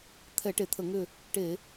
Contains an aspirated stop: yes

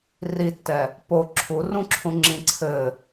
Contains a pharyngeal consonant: no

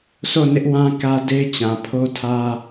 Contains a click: no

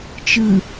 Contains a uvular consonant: no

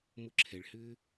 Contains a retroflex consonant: yes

